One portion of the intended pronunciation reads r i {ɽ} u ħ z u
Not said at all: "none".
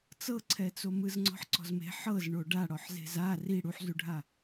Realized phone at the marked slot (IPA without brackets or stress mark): ɽ